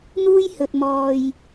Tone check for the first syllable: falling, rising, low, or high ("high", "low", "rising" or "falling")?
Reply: high